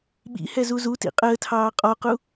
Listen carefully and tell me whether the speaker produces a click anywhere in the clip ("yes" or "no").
no